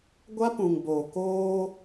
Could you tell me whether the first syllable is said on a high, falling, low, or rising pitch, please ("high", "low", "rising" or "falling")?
high